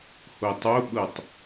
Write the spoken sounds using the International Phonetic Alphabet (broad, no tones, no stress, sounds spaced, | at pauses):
h o tˤ o ɓ ɤ tˤ